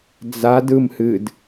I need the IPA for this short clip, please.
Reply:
d͡za dɯmhɨd

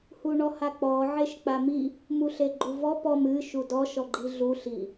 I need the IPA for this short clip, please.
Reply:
huɳɔhak͡pɔ ʕeʃk͡pami | muɬeɡ͡ǃuvɔ pɔm ɨ ʃudɔ ʃɔɡ͡ǃiɮu ɬi

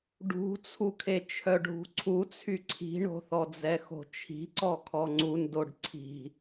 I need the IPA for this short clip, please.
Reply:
ɖṳt͡sʰukʰe t͡ʃʰœɖʱṳǀʰut͡sʰy ǀʰi̤ɳo̤θɔd͡zɛ xo̤t͡ʃʰi̤ǀɔkʰɔ ŋ͡ǀun doɖǀʰi̤

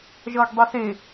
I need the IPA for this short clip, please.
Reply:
ʒʌːɡdˤese

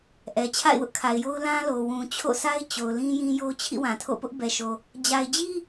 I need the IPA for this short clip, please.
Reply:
ʔɛ˨ t͡ɕʰa̰˦˨ɪ̯wʊ˦ʔkʰa˨ɪ̯jo˦ʊ̯ lã˦lo˨ wũ˨ t͡ɕʰo̰˦˨sʰa˦ɪ̯ t͡ɕo˨ʊ̯lĩ˦jĩ˦jo˦ t͡ɕʰḭ˦˨wã˨tʰo̰˦˨ pʊ˦ʔbɛ˨ʃo˨ | d͡ʑa˨ɪ̯d͡ʑi˦

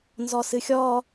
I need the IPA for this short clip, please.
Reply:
nzɔsɨxʲɔ

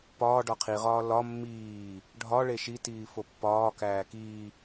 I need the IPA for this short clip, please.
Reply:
pɒː ɖɒqʰiʁɒː lɒ mːiː | ɖʱɒɭe ʃitiː fopːɒːkæː kiː

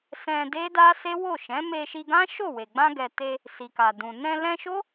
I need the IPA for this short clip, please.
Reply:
sɛ̃˧de˦da˦ se˦wo˦˨ʃɛ̃˨˦ me˧ʃi˧ɡã˦ ʃo˦˨we˨ ɡ͡bã˧ɡɛ˨ te˧ | si˨ka˨dũ˨ nɛ̃˧lɛ̃˧ʃo˦

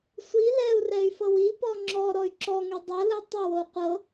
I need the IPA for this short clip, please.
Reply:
sʷi lɛu̯rɛy̯ fɤwipɔ ŋ͡ǁɔ ɾɔy̯ǁɔŋɛ dˤɤlɯ tˤiwou̯ qʷɤ

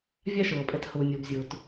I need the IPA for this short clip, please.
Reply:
vʲa˦ʃɤː˨pʼɛ˧t hʊː˨nʲɤ˨bzʲʊː˨t

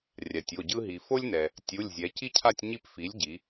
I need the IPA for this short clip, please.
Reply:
rʲa˩tʲo˩˧˩ɟɯ˥ ɦi˩fo˥lʲnɛ˩ | tʲu˩˧˩lʲzʲɛ˩˧ci˥cʰa˥˧tʲ ɲi˥˧pfi˨˥lʲɟi˩˧

